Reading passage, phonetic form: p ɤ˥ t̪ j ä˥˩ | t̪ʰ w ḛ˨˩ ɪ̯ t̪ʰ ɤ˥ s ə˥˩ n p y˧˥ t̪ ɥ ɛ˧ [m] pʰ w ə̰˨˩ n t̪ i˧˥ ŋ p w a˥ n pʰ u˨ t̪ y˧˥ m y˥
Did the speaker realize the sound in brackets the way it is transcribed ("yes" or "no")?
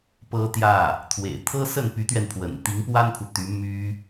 no